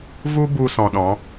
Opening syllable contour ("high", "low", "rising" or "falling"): high